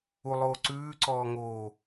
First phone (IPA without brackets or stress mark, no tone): u